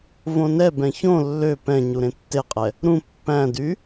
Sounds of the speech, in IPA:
võnɛbɛ̃ çõ lːø pɛ̃ɲu ɾẽtːeqʼɛ | ɾũ pːæ̃dy

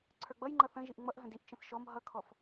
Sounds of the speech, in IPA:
ǀʰə˞ɡ͡bʌjŋ͡ǃʌ θə̃ʒiʔ ŋ͡mʌʔɦə̃d iʔt͡ʃə̃θ ʃɔm ɦʌkʰɔf

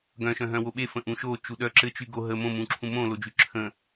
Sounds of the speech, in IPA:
ɡœ̃ʃœ̃ɦœ̃ woɓefə̃ ʔũʃot͡ʃu ɗœ ǁɘt͡ʃy ɡo ɦə mõmũǁʰũ mõlod͡ʒy ǁʰə̃

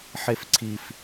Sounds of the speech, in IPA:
ħefǀʰif

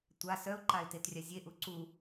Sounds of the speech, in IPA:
tʷa sœʊ̯ǃaɪ̯tetrʲa zʲeʔu ǀu

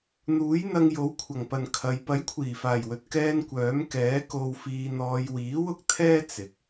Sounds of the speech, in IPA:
n̪uː˨˥jn̪ɐ˧ŋ jo˨˥wkʷʰɐ˨˩ŋpɐ˨n kʰɐ˨˧j pɐ˨˥jkʷʰiː˨˩faː˨˩jwɵ˨t̚ kɛː˥nkʷœː˨˥m kɛː˨˥ko˧wfiː˧n̪ɔː˧j wiː˨˥wʊ˥k̚t̪ʰɛː˥ t͡sɪ˨˥k̚

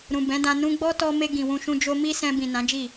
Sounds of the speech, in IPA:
ɾũ˨bɛ̃˨˦dã˧ nũ˧ɡ͡bɔ˦tɔ˧ me˧ɡĩ˨ wũ˧ʃũ˦ d͡ʒo˦ mi˦sɛ̃˧bĩ˨ nã˨˦d͡ʒi˦˨

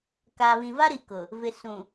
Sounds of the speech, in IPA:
kaː˨βĩ˨va˦ɾi˨ kʊ˨ | vɪ˨ sũ˨

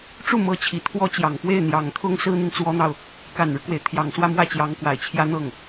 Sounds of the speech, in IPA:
ʈ͡ʂu˥˩mɤ˧˥ t͡ɕʰi˨˩t̪ʰwɔ˥t͡ɕjɑ˨˩ŋ pwe˥˩ɪ̯n̪jɑ˨˩ŋt̪ʰʊ˥ŋ sɹ̩˥n̪i˨nt͡swɔ˥n̪ɑ˨ʊ̯ | ka˨˩nɻu˦kwe˩ɪ̯ t̪ʰjɑ˨˩ŋswä˥˧mwä˥˩t͡ɕjɑ˧˥ŋ kwa˨˩ɪ̯t͡ɕʰjä˥n̪ɤ˥˩ŋ

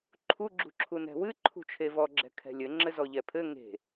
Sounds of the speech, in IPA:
ǃʰuɡ͡ǁṳǁʰu nɛ̤wɨ ǃʰṳt͡ʃʰevɔɡ͡ǁɛ̤ kʰɛ̤lʲɘ ŋ͡ǁɘzɔʎɛpʰɘ ŋe̤

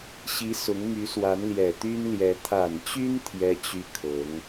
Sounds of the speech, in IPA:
ɕi˧˥ sʊ˧˥ŋ my˧˥swa˧˥n ljɛ˨˩t̪y˥n ljɛ˧˥ t̪ʰa˨˩nt͡ɕy˥n t̪ʰjɛ˥t͡ɕy˥˩ kʰɤ˧˥ŋ

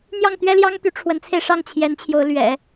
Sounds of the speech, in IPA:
n̪jɑ˥˩ŋt̪ɥɛ˥ljɑ˥ŋ t̪y˧˥ʈ͡ʂʰwə˧˥nt͡sʰe˧ɪ̯ʂɑ˥˩ŋ t͡ɕʰjɛ˧˥n t͡ɕʰjo˧˥ʊ̯lɥɛ̰˨˩˦

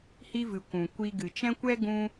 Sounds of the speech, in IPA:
hi˧vɨ˨ kʷũ˨kʷi˧ ɡɨ˨t͡ʃɛ̃˦kʷɛ˦ ɡũ˦

